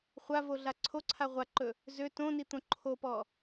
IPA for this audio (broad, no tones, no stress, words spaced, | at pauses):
χʷa voɮaǀʰoǀʰa ʁʷaǃɵ | zø tõni t̪õǃʰopɔ